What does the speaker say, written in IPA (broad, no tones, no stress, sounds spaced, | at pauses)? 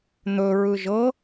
n̪ ɵ ɹ ɯ ʒ ɤ